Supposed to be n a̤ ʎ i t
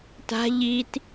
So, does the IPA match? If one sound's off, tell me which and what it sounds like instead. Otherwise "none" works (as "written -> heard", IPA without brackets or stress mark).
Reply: n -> t